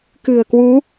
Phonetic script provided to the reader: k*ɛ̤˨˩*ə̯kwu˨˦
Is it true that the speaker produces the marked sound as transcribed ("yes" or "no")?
no